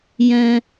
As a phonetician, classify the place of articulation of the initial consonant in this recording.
palatal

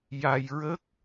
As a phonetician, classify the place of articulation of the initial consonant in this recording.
palatal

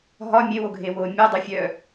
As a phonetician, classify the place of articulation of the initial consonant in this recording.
glottal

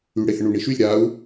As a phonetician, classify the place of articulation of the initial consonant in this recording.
retroflex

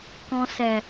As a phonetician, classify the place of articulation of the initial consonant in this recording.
velar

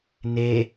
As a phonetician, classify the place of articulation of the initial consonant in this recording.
alveolar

